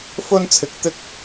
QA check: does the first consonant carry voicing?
no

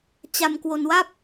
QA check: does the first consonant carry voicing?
no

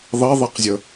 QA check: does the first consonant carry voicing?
yes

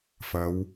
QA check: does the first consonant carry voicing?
no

